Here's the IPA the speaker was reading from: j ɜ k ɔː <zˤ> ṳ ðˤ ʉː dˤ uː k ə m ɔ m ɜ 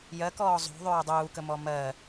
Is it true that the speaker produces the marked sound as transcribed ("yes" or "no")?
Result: yes